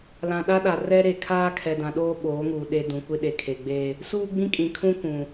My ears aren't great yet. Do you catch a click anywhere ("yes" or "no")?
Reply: no